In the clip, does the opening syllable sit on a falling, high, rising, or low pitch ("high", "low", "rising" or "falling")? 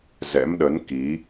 rising